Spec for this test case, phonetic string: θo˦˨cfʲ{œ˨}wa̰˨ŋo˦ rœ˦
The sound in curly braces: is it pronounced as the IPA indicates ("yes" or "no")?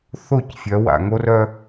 no